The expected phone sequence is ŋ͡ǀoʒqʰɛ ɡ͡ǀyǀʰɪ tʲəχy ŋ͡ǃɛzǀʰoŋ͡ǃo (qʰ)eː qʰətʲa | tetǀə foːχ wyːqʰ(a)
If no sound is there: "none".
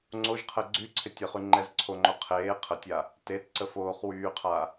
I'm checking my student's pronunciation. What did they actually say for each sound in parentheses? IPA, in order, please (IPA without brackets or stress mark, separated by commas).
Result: qʰ, a